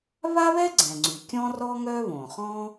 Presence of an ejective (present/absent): absent